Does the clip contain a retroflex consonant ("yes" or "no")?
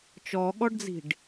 yes